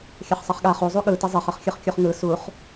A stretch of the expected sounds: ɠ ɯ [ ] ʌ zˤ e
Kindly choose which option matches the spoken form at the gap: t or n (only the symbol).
t